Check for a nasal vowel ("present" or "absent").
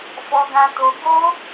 present